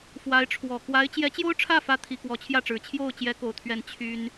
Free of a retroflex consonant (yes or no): no